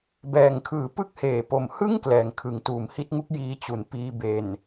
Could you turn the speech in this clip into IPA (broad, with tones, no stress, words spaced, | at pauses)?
bɛː˨˩ŋkʰɯː˨˩pɯ˥˩k̚ heː˨˩po˨˩mhɯ˥˩ŋ klɛː˩˦ŋkʰɯ˩˦ŋ tuː˨˩mhi˦˥t̚ŋu˦˥k̚ jiː˧t͡ɕu˩˦n piː˧ be˨˩n